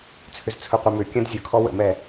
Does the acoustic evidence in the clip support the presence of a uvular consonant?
yes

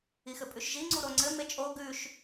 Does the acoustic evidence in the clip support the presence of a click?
yes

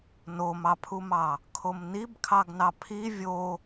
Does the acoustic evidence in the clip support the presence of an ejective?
no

